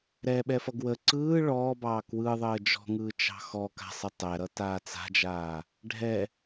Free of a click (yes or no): no